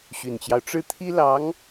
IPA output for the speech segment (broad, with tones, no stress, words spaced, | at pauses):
ɕy˨˩nt͡ɕjɑ˦ʊ̯ ʈ͡ʂɻ̩˥˩t̪ʰi˥lɑ˧˥ŋ